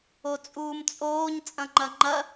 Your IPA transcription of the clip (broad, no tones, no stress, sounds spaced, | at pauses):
o t͡sʼ uː m t͡sʼ oː ɲ t͡sʼ ɐ̃ ŋ͡ǃ ɐ ŋ͡ǃ ɐ